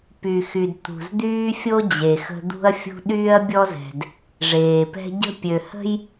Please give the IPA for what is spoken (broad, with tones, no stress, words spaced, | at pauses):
py˨xy˨d t̪ṳ˨z d̪yː˦fʲo˦ d͡ʑe˨xə̤˦ d̪ṳ˦ɐ̯fʲṳ˦ ɗyː˦ɐ̯bʲɔ˦zɛ̤˨d | ʐeː˨pɛ̤˦ ɟə̤˦ pʲø˨hə̤˦j